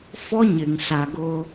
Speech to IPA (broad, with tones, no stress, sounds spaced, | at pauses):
f ɔ˦ ɲ ɪ˨ ŋ s a˨ ɡ ʊ˦